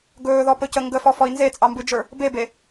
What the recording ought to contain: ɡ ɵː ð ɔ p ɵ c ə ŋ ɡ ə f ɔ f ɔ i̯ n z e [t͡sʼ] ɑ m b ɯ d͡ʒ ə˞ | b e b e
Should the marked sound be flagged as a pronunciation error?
no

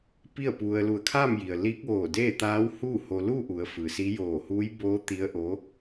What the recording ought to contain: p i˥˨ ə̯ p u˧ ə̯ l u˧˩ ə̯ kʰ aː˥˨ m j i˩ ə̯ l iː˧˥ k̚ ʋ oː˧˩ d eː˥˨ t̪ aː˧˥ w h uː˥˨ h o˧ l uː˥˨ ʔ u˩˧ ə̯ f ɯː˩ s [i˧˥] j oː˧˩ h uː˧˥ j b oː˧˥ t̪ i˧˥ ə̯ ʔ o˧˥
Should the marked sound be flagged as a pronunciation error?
no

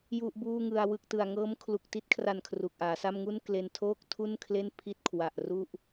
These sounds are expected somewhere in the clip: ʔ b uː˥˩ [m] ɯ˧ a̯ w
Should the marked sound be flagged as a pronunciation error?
yes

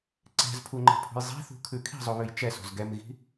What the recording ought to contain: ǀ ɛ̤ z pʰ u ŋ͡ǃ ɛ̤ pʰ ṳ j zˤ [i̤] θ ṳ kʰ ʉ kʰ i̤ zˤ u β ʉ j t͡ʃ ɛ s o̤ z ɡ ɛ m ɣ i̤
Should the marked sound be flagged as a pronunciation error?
yes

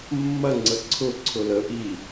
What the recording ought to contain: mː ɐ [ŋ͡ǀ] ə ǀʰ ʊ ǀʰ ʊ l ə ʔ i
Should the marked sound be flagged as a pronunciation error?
no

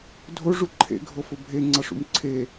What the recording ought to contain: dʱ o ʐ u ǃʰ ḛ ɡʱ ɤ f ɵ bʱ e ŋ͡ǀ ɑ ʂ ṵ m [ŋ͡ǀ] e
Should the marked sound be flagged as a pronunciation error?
yes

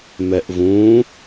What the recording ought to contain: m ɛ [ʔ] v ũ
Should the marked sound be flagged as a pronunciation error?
no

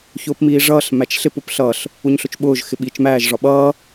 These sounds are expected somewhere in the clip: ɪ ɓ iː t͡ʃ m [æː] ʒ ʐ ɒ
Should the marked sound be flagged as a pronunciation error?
no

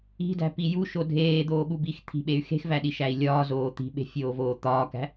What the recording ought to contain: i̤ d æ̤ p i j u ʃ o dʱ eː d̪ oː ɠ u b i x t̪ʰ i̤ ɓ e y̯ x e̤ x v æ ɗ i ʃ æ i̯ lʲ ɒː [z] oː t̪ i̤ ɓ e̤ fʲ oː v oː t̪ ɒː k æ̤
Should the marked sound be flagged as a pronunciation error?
no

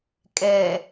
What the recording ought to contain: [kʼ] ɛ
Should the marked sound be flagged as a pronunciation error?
no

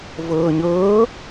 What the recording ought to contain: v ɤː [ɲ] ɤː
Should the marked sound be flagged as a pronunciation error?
no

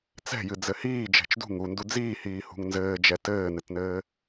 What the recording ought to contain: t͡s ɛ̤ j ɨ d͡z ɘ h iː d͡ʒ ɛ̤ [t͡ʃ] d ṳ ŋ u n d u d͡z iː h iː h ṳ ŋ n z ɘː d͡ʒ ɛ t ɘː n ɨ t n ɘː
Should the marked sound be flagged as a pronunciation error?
no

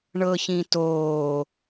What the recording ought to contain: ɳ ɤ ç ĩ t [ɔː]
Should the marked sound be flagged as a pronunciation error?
yes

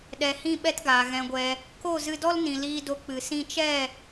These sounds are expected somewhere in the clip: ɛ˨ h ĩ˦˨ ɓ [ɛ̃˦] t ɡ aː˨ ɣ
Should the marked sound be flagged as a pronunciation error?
yes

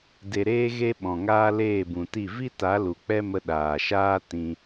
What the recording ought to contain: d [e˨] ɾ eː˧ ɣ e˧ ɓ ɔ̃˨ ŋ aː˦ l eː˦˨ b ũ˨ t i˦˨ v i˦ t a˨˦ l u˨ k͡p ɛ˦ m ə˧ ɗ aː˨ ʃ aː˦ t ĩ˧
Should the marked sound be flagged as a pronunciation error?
no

